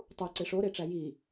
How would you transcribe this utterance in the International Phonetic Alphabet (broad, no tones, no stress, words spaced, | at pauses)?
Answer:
tˤuǀe ʂoɾeʈ͡ʂæ ji